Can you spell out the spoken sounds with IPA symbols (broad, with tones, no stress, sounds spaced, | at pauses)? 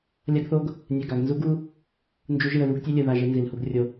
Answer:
lʲ a˦ ɡ θ o˦ ɡ | nʲ ɛ˨ ɡ a˨ ɡ n z u˦ ɡ u˦ | n d͡ʒ u˦ ʒ ɯ˦˨ ə̯ ð u˦ ɡ tʲ e˦ lʲ ɯ˨ ð a˦˨ ʒ e˦ n z i˨ l h u˦ ɡ rʲ o˦